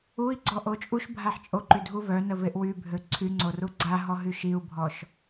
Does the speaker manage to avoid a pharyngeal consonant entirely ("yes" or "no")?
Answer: no